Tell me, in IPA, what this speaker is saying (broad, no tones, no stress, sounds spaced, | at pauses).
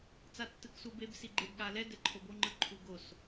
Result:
t͡s a tː ɯ k s u b e b s i ɡ͡ǃ e b ɠ a l ɛ d ɛ ǃʰ o b o ŋ͡ǃ ɯ ǃʰ u ɡ o s